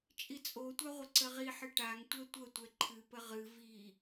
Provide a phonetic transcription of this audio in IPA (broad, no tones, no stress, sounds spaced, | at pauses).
t͡ʃʼ i t͡sʼ o tʷ a ʁʷ ə ǀ ə ʁ i ħ ɨ ʈ a ŋ tʷ ɛ tʷ ə tʷ ɛ ǃʰ ɨ p ə ʁ ɨ v i